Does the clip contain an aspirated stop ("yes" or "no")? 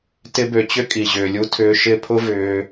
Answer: yes